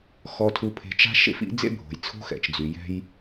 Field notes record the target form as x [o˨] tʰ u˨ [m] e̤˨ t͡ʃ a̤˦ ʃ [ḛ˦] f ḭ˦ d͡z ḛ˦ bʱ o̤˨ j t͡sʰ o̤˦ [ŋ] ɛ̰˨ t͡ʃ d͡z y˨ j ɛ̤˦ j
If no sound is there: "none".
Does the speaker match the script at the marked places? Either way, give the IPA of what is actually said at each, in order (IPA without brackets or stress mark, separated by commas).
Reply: ɔ˨, pʰ, ḛ˦, x